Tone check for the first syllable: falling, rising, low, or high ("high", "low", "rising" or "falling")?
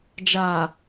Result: low